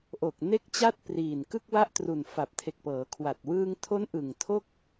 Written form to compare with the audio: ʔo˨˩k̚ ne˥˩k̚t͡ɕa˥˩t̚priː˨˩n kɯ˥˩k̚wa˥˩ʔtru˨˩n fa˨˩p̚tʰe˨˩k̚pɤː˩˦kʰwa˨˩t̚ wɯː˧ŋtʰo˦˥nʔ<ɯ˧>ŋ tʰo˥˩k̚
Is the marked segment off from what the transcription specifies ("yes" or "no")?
yes